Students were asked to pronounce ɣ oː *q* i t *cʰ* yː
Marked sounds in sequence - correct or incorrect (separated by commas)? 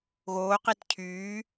correct, correct